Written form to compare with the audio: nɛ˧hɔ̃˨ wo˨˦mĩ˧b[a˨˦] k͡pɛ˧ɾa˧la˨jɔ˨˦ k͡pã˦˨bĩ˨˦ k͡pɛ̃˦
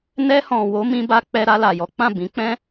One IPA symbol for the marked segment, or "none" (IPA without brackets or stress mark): a˧